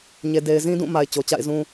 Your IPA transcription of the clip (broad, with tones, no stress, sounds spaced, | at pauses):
ɲ e˨ d e˨ ɪ̯ z ĩ˦ d ũ˦˨ m a˨ ɪ̯ t͡ɕ o˨ t͡ɕ a̰˦˨ ɪ̯ z ũ˦